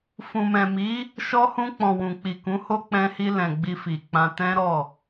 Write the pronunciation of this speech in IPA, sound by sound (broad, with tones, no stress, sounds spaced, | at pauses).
f ũ˨ m ɛ̃˨ m i˨˦ | ʃ ɔ˧ h ũ˧ k͡p ɔ̃˨ w ũ˨ k͡p i˨ k ũ˨˦ h o˦ k͡p ɛ̃˧ h i˧ l ɛ̃˨ ɡ͡b i˧ f i˨ k͡p ã˧ t ɛ̃˦ ɾ ɔ˦˨